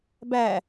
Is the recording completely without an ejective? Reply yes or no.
yes